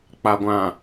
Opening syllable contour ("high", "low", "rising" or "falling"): low